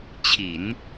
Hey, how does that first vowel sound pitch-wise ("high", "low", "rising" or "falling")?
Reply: low